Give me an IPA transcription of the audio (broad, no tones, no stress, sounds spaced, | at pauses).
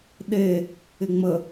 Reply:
ɗ e | ɪ ŋ͡m ə